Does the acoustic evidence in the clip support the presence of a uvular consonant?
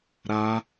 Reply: no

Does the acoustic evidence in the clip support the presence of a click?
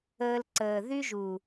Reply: yes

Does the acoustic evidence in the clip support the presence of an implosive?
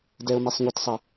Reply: no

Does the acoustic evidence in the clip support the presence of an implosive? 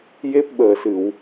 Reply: yes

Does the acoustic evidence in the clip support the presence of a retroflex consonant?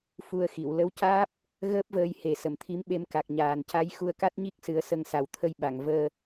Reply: no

